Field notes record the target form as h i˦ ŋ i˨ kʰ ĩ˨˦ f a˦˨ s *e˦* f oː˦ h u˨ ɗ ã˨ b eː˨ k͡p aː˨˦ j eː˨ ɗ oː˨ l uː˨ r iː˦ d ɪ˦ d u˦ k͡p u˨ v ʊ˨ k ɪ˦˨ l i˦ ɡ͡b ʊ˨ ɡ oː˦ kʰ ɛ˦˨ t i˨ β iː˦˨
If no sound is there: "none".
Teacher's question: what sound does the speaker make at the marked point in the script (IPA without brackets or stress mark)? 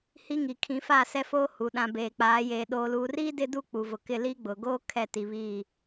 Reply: ɛ˦